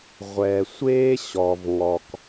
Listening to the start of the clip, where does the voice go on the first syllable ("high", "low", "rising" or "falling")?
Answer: low